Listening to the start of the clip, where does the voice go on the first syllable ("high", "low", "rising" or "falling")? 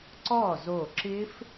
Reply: falling